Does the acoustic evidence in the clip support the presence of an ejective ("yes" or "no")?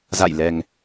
no